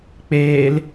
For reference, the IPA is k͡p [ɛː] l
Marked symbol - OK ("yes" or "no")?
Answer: no